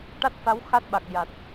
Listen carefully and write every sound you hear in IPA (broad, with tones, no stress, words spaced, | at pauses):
ʈa˦˥t̚fa˧˥w xa˦˥t̚ɓa˨˩k̚ ja˨˩t̚